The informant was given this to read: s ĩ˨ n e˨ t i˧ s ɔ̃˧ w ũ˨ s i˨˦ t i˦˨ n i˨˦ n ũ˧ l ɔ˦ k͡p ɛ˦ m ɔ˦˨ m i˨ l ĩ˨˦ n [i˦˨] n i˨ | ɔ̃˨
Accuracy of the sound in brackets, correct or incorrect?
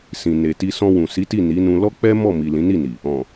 correct